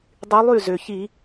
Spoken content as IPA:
dˤ y˧˥ lˠ y˥˨ z ø˩ ç i˧˩˧

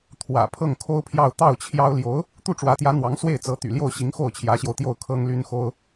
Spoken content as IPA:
t̪ʰ w ä̰˨˩ pʰ ɤ˥˩ ŋ kʰ o˥ ʊ̯ pʰ j ɑ˥˧ ʊ̯ t̪ ɑ˥˩ ʊ̯ t͡ɕʰ j ɑ˥ ʊ̯ l j o˧˥ ʊ̯ | t̪ u˥˩ ʈ͡ʂ w ä˧˥ t̪ j ä˧˥ n̪ w ɑ˧˥ ŋ s w e˥˩ ɪ̯ t͡s ɤ˧˥ t̪ y̰˨˩ l j o˥˩ ʊ̯ ɕ i˧˥ ŋ x o˥˩ ʊ̯ t͡ɕʰ j ä˧˥ ɕ j o˧ ʊ̯ t̪ j o˥˩ ʊ̯ kʰ ɤ˥ ŋ l y˥ n x o˥ ʊ̯

